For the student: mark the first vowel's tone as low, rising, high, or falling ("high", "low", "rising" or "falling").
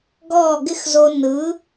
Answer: falling